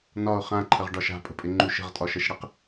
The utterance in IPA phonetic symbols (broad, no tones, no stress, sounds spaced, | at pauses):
n ɒ ʊ̯ χ ã ǃʰ ə ʁ ɖ ɒ ʃ a̤ pʼ ə̤ pʼ ɪ ŋ͡ǃ u ʃ ə̤ ʁ tʼ ɒ ʃ ə ʃ ɽ ɪ q